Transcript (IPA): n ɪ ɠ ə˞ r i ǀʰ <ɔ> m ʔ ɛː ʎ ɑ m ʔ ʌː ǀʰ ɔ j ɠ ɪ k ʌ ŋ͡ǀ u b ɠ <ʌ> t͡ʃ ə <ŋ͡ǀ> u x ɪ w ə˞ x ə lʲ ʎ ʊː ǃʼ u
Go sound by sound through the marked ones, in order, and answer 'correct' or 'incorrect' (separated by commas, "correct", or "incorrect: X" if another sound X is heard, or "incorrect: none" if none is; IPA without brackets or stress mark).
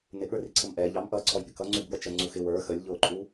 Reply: incorrect: ə, correct, correct